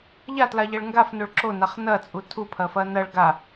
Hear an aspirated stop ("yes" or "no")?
yes